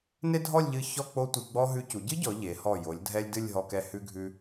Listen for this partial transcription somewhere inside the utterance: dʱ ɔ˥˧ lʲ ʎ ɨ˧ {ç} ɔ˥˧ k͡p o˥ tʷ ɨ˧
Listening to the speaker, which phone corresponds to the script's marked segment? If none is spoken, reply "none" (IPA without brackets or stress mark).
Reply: ç